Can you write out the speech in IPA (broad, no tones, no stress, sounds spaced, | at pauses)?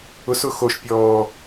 ʊ s ʊ x o ʃ pʲ ɔː